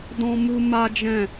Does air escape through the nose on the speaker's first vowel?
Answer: yes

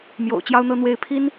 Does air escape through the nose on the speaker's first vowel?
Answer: no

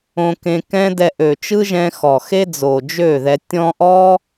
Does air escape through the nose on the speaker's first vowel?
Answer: yes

